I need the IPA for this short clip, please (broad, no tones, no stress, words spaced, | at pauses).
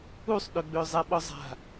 usˤɗøɡ͡bøzˤɛ ɓɔzˤa̤